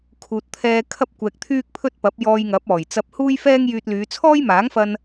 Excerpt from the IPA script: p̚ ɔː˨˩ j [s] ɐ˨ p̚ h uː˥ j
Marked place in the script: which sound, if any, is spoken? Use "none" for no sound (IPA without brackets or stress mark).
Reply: t͡s